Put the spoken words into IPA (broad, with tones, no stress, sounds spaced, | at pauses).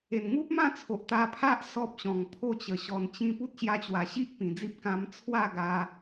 e˨˩ n ŋ u˦ p̚ m ã˥˧ t͡sʰ o˨ ʔ t̪ a˧ pʰ a˦ ʔ s ɔ˦ p̚ ɕ ɔ̃˨˩ ŋ pʰ o˥˧ t͡ɕ ə˨˩ ɕ ɔ˨˩ n t͡ɕ ĩ˧ p u˦ t̚ ɕ j a˧ t͡ɕ w a˨˩ ɕ i˦ ʔ p ĩ˨˩ d͡z i˦ p̚ k ã˧ m t͡sʰ w a˥˧ ɡ a˧